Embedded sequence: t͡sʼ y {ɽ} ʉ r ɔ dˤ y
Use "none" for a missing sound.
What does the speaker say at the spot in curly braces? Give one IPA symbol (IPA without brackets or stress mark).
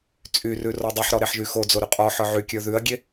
r